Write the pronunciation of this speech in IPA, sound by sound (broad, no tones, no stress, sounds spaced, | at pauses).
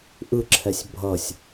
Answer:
ʔ ɯ ǁʰ ɛ sʲ bʱ ʌ sʲ